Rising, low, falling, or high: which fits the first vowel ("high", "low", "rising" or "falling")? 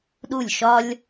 falling